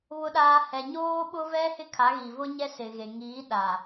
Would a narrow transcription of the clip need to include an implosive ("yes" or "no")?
yes